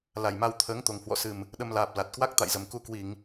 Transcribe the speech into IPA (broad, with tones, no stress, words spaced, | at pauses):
la˨˩jma˧w t̪ʰəː˨˦ŋ t̪o˨˩ŋhwɔ̰˧˨sɨ˨˩m | ɗə˧mlaː˨˩p̚ la˨˩t̚ kwa˦˥k̚t̪a̰˧˨jzə˨˩m ku˧kwi˧˩˨ŋ